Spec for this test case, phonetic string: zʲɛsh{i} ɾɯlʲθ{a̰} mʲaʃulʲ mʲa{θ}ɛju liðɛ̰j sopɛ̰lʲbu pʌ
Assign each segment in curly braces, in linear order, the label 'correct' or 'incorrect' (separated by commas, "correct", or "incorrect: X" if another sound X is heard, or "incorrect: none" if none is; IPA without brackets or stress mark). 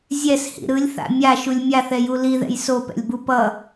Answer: incorrect: ḭ, correct, correct